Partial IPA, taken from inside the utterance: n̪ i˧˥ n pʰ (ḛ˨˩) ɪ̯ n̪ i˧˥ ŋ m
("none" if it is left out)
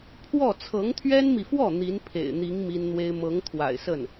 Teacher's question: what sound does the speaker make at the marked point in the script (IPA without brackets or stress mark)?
ḛ˨˩